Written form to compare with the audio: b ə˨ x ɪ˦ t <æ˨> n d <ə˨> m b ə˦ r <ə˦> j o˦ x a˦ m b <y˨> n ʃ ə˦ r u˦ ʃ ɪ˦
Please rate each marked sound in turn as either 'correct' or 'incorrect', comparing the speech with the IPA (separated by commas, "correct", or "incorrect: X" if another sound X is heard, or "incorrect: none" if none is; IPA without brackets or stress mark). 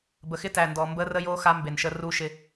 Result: correct, incorrect: ɔ˨, correct, incorrect: e˨